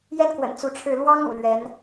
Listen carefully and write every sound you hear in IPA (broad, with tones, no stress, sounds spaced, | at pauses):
j ɛ˥ n k w ə̰˨˩ n t͡s u˧˥ ʈ͡ʂʰ ɻ̩˥˩ l w ɑ˥ ŋ ṵ˨˩ l ɥ ɛ˧˥ n